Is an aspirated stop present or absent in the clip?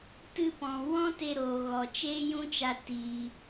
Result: absent